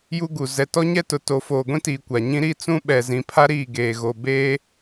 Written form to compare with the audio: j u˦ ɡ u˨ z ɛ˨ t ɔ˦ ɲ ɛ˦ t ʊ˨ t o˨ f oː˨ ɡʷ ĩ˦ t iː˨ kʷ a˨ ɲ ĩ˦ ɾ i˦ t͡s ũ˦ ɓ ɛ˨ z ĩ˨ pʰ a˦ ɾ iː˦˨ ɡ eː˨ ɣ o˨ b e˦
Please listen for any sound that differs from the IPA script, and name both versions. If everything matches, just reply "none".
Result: none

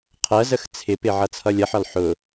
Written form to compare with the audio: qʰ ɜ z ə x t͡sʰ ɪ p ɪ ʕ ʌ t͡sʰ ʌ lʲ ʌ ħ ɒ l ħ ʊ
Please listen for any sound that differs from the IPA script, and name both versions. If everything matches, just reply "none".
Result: none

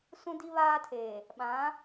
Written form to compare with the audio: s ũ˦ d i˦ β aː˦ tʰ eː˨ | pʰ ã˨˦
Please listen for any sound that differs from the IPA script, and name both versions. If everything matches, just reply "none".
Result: pʰ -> ɓ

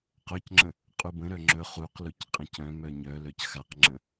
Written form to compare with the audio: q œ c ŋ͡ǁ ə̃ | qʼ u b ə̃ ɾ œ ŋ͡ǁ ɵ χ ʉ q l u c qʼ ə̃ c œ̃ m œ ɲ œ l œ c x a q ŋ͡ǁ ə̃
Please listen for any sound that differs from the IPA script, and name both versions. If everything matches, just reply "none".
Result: ʉ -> u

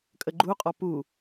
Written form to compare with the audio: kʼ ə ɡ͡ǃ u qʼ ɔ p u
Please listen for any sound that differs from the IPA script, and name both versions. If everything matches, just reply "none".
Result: none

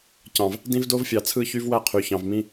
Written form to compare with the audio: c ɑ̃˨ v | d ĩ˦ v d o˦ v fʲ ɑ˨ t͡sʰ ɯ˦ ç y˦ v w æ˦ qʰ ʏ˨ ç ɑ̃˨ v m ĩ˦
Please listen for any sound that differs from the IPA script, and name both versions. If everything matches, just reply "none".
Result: ʏ˨ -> y˨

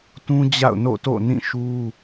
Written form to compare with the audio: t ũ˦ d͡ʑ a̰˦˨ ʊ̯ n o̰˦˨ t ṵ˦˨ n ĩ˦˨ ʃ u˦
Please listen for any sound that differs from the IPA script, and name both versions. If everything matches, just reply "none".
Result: ṵ˦˨ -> o̰˦˨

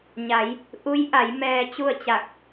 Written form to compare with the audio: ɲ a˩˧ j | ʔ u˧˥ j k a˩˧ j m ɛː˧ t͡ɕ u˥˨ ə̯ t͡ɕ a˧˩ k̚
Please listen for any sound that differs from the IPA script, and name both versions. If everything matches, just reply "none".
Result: k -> ʔ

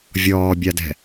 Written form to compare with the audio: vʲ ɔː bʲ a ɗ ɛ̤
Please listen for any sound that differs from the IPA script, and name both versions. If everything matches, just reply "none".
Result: ɗ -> d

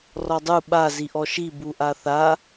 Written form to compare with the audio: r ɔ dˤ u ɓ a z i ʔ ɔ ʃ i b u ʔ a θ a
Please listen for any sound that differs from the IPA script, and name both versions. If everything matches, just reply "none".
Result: none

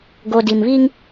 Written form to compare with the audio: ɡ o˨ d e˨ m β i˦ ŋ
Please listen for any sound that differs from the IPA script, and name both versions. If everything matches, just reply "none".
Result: e˨ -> i˨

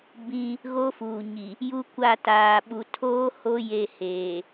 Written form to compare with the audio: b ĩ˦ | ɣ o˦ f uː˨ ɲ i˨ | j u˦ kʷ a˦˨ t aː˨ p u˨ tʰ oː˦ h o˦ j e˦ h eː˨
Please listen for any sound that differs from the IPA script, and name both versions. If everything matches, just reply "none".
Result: p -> ɓ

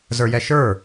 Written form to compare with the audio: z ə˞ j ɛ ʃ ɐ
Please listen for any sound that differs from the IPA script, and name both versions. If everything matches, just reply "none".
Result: ɐ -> ə˞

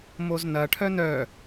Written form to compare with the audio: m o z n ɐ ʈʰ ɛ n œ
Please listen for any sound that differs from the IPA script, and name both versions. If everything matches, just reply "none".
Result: ɛ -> œ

